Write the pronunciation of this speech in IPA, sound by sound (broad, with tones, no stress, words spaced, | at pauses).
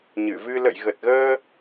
ɲɨ˧˩vɨ˧ lə̰˧˨jɣə˨˩t̚ɣəː˧